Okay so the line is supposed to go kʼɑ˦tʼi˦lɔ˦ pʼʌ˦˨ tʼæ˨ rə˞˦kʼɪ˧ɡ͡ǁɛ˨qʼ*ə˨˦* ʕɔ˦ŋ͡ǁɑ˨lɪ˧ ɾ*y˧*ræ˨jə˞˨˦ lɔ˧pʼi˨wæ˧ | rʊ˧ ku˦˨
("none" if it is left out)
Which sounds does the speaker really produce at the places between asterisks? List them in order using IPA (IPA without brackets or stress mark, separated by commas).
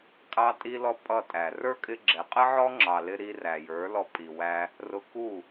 ə˦, i˧